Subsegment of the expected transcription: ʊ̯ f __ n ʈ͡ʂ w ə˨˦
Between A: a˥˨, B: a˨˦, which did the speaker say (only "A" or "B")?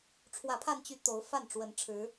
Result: A